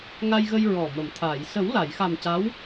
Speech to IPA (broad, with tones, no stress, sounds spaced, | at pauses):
ŋ a˧ j ɣ ə˧ j ɹ ɔ˨˩ m ə˨˩˨ m t̪ʰ aː˨˩˨ j s ə˨˩˦ w l a˨˩˨ j x a˨˩ m c a˧˥ w